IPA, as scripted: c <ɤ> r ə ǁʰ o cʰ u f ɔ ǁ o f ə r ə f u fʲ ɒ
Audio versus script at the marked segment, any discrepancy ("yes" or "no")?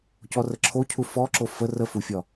yes